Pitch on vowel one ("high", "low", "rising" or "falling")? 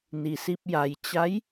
low